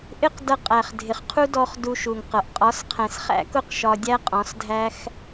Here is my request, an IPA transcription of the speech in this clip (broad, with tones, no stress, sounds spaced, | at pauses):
ʔ ɪ˦ q d ʌ˧ qʼ æ˨ χ dʱ ɪ˨ χ qʰ u˦ d ɔ˧ χ d u˧ ʃ u˨ ŋ q ʌ˨ ʔ qʼ ɒ˨˦ s qʰ ɛ̃˨ s χ æ̰˦ k ʊ˦˨ q ʃ ɒ˧ dʲ æ˦ qʼ ɔ̃˨˦ s dʱ æ˦ x